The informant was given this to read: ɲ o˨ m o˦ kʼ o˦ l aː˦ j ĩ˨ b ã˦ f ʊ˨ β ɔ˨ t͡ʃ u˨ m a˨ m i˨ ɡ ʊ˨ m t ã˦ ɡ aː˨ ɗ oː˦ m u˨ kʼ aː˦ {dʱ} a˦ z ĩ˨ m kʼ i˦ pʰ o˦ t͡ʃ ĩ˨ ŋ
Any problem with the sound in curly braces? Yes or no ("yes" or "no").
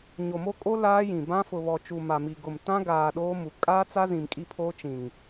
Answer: yes